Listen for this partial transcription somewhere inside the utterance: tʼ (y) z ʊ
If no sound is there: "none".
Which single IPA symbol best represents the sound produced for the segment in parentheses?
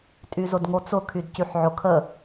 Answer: y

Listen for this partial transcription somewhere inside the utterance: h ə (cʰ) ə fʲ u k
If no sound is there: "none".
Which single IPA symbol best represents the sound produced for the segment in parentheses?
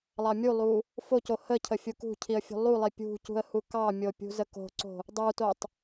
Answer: cʰ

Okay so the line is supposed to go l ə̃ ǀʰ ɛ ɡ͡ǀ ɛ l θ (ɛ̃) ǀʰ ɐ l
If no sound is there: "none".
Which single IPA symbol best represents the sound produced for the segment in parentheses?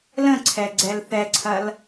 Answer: ɛ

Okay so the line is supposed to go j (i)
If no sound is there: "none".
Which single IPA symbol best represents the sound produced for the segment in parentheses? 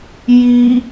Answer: i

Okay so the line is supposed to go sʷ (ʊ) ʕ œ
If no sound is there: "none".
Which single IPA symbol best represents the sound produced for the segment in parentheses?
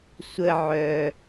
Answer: ə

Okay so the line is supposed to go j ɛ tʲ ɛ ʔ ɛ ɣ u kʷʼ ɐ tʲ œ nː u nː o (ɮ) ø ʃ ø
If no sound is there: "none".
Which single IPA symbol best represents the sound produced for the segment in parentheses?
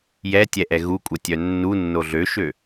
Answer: ɮ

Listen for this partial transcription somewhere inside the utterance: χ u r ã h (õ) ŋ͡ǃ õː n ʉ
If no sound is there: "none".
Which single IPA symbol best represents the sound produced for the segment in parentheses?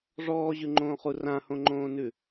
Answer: õ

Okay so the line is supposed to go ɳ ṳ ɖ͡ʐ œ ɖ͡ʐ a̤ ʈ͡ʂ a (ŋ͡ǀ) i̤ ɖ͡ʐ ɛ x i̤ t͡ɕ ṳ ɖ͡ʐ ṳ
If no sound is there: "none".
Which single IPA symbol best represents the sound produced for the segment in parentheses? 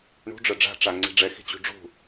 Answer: ŋ͡ǀ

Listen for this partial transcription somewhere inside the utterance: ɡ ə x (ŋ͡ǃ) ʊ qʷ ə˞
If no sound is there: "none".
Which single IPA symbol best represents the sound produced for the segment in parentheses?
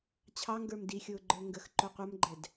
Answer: ǃ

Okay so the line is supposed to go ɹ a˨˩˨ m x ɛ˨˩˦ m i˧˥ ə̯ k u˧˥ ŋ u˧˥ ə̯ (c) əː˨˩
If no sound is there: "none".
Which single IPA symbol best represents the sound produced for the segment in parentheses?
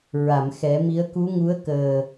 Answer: k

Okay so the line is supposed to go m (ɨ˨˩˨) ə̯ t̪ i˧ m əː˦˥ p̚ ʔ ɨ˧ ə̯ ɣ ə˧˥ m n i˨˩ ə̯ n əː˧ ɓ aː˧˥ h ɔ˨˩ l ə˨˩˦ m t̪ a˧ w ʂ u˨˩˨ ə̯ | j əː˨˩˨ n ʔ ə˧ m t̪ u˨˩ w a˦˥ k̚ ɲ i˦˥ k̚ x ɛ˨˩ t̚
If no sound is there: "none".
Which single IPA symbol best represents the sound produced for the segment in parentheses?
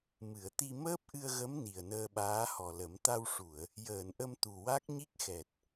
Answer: ɨ˨˩˨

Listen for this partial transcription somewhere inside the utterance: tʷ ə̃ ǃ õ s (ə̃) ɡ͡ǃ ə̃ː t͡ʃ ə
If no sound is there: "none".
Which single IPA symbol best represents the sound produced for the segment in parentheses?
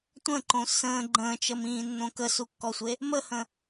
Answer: ə̃ː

